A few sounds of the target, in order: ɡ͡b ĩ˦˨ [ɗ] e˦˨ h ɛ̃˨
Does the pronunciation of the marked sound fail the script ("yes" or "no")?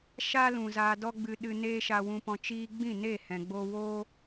yes